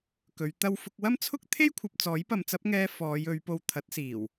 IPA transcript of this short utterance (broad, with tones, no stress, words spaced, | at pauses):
kɵ˨˧ɥ t̪ɐ˥wfʊ˥k̚ wɐ˥mt͡sʰʊ˥k̚t̪ʰe˥jkʷʰɐ˨p̚ t͡sɔː˨˥jpɐ˨˧mt͡sɐ˨˥p̚ŋɛː˧ fɔː˨˧j ɵ˨˧ɥpo˧w t̪ʰɐ˨˥t̚siː˨˩w